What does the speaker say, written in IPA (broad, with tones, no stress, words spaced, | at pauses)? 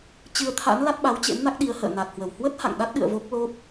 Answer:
t͡ɕɨ˧ə̯t̪ʰa̰˧˥n la˦˥t̚ɓa˨˦wt͡ɕḛ˧˥mna˦˥k̚ ɗi˨˦ə̯hə̰ː˧˨ na˨˩t̚hwə˧˩whwə˦˥t̚ ha̰˧˨ŋɗa˦˥t̚ɗɨ̰˧˨ə̯ vo˦˥k̚lo˦˥p̚